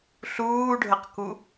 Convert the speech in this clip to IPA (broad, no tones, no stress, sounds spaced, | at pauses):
ɬ uː ɖʱ ə q k u